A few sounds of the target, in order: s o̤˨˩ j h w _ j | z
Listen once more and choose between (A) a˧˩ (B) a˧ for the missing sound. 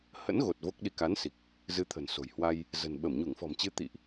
B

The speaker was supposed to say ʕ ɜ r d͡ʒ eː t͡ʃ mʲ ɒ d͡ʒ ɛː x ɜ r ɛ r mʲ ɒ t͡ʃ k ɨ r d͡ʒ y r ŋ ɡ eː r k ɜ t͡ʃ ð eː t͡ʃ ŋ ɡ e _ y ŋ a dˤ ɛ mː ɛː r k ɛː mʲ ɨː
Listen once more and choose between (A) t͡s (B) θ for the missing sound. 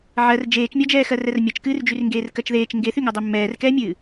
B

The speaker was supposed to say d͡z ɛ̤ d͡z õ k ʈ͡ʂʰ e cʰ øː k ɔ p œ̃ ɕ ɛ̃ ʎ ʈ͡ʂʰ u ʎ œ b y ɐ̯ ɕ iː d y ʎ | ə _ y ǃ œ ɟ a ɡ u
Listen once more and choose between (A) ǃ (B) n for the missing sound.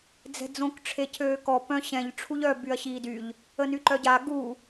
B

